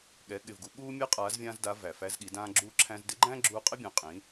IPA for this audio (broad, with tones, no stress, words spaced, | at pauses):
ɠɛ˩˧ɠɪ˩vɡu˩˧ ɠuː˧ mʲɛ˧˥qʼaː˩˧zvʲãː˧zda˩˧ væ˩fæ˧zɠi˩˧ dãː˧ɡ͡ǁuː˧ ǁʰæ̃˧zdɪ˧˥ɡ͡ǃæ̃˥ ɡ͡ǁuː˧qʼɪ˥bʲã˩˧ qʼĩ˩˧